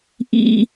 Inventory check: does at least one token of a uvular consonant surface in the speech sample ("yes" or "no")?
no